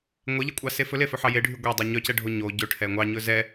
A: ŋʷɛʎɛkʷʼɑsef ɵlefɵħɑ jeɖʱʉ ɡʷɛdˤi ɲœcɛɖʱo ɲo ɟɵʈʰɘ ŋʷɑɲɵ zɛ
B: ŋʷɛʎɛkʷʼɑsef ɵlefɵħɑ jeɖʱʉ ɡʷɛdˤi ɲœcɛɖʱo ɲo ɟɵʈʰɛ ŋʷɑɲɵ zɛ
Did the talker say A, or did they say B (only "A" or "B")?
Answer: B